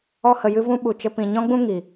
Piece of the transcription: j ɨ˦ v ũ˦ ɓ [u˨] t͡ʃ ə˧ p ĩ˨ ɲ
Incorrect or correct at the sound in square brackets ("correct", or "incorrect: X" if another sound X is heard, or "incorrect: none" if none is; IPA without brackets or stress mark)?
correct